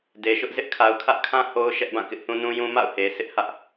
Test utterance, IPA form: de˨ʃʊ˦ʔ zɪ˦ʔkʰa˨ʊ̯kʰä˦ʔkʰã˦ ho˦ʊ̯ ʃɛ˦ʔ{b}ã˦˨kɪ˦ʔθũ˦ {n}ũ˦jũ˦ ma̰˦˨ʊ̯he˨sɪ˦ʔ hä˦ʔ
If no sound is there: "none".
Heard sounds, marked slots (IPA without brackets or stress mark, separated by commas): b, n